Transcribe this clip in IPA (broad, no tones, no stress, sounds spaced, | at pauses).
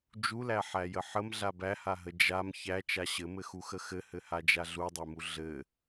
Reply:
d͡ʒ u l æ ħ æ j ə ħ ə m ɮ a b æ h a ɦ ə d͡ʒ a m ç æ t͡ʃ a ɕ ɘ m ɘ x u x ə x ɘ h ɘ h a d͡ʒ a ɮ u dˤ æ m u ɮ ɘ